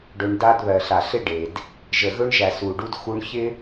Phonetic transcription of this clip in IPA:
ɖ ɵ˧ ɳ d a˧ d β ɜ˨ ɬ a˨ ɬ ɪ˦ ɖ e˨ d | ʒ ə˨ ɣ ɵ˧ ɳ ʒ æ˨ s u˨ ɖ u˧ d x u˧ ɳ ç ɪ˦

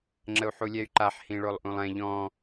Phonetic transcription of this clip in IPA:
ŋ͡ǁ ə u̯ ħ u lʲ ɛ y̯ ǃ a ħ h ĩ ɭ o lˠ ʔ ũ lˠ ɛ̃ ʎ ɔ̃

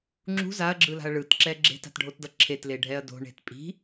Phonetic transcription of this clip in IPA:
ŋ͡ǁ ṳ z a ɐ̯ ɡ͡ǁ ɯ l a̤ ɐ̯ ɭ ɯ t ǁ ɛ ɡ͡ǁ e̤ t a̤ t ɖʱ o t d ʌ ǁʰ e t l e ɖʱ ɛ ɐ̯ d o̤ ɳ e̤ t pʼ i̤

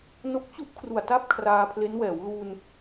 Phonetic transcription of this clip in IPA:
n o˦˥ k̚ t͡ɕ u˥˩ ʔ kʰ r u˨˩ a̯ t a˥˩ p̚ kʰ r aː˧ pʰ l e˦˥ n w ɛː˩˦ w l uː˧ n

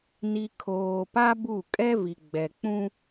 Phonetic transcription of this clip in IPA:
n i˨ kʰ oː˨ p a˦ b u˦˨ kʼ ɛ˦ v i˨ ɡ͡b ɛ˨ k͡p ũ˦

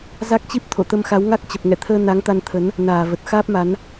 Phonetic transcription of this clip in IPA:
z a˦˥ k̚ t͡ɕ i˦˥ p̚ t̪ʰ o̰˧˨ t̪ ə˧ m x a˨˦ w ŋ a˦˥ k̚ t͡ɕ ə˨˩ p̚ ŋ ɛ̰˧˨ t̪ʰ əː˧ n a˨˦ ŋ t̪ a˧ n t̪ʰ ə˨˦ n | n aː˧˩ v ə˨˩ t̚ x aː˦˥ p̚ m a˨˦ n

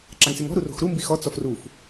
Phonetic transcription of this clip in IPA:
ǁ a ŋ s e ŋ ɔ̤ ɾ u r o̤ x ɾ u m b i x ɔ t͡s ɔ f r u f

